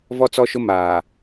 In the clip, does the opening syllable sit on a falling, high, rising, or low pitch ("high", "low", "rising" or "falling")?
high